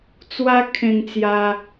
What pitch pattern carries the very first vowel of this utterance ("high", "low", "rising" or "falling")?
high